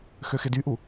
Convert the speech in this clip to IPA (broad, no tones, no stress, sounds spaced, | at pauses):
x ø x ɪ d y ʔ u